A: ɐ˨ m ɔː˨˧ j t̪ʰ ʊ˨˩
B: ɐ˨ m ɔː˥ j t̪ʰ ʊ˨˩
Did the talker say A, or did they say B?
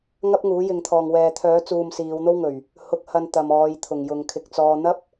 A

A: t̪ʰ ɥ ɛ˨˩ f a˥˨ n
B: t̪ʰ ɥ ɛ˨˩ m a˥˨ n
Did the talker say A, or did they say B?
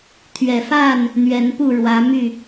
A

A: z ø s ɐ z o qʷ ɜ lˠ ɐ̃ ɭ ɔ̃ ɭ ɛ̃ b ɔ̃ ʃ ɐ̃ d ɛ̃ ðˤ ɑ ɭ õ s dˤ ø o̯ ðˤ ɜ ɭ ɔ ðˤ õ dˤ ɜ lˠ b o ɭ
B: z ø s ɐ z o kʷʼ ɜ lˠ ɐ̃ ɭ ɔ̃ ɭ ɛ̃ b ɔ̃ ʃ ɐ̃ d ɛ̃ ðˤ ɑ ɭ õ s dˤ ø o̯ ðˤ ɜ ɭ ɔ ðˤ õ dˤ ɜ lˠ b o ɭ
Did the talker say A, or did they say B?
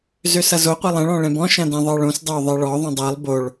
A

